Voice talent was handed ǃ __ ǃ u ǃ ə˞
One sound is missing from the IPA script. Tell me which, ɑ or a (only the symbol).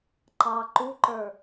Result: ɑ